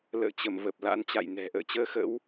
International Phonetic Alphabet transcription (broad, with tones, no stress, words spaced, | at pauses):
lə̰ː˧˨t͡ɕə˧˩mvə˨˩p̚ la̰˧˥nt͡ɕa̰˧˨jnɛ̤˨˩ ʔə̰ː˧˨t͡ɕəː˧xə̰˧˥w